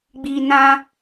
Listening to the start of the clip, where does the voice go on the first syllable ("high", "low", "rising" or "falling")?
low